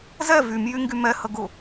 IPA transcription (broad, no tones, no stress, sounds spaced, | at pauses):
z ɛ v y m j y ŋ ɡ y m ɛ h ə ɡ ʊ